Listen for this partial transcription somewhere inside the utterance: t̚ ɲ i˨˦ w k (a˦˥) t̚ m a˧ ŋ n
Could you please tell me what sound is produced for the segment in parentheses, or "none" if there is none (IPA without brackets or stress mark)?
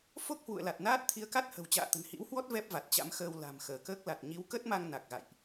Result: ə˦˥